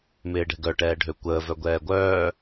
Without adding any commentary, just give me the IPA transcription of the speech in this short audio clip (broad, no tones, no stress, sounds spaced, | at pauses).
m ɪː ɖ ɛ̤ ɡ œ ʈ ɛː ɖʱ ø kʷ əː v œ ɡʷ ɛː ɡʷ œː